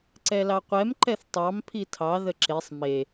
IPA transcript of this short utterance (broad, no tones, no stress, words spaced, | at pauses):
ǀɛlɑqʷɛm ǃɛθtˤɑm pʰitʰɑ ðəǁesˤ me